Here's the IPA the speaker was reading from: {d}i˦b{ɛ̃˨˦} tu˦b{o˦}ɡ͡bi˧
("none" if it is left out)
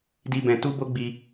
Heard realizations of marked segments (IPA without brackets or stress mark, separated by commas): d, ɛ̃˧, o˦